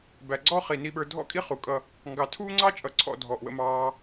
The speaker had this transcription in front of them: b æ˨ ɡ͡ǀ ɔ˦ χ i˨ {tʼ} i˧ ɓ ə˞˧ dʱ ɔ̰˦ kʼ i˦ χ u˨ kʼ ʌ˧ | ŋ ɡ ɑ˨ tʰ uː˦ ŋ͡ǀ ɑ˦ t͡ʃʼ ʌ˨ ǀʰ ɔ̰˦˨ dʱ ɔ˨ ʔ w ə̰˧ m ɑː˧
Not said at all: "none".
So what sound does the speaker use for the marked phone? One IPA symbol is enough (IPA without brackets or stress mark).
n